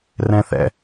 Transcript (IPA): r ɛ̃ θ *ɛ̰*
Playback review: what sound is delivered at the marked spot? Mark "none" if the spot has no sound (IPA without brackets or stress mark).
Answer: ɛ̰